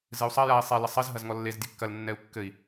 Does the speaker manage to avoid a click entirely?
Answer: yes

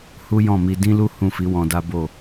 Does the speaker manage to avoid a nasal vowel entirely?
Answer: no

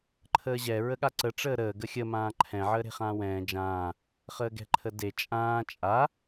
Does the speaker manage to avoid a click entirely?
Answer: no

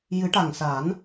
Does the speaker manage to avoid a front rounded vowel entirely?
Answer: yes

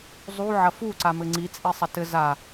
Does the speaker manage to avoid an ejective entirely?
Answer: no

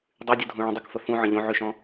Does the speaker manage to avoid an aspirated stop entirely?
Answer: yes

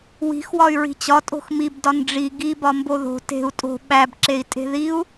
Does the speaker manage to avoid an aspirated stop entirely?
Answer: yes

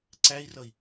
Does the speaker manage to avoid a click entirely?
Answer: no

